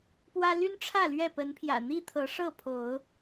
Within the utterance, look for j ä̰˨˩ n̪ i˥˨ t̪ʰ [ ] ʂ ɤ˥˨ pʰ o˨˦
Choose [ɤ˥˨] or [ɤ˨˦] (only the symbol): ɤ˨˦